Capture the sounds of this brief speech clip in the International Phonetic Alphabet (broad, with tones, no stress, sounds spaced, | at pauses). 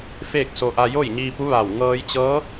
f eː˥˨ k̚ s o˧ ʔ a˧ j o˥˨ j ɲ iː˧ p u˧˥ ʋ a˧˩ w ŋ ɤː˧ j t͡ɕ ɤː˧˥